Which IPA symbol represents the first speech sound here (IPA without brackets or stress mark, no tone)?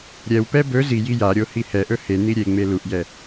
ɾʲ